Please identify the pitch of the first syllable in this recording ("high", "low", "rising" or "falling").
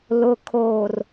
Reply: low